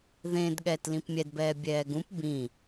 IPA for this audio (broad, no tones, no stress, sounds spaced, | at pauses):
ð ẽ d ɠ ɛː t l ĩ p mʲ ɛ d b ɛː bʲ ɛː ɡ ũ p b ĩ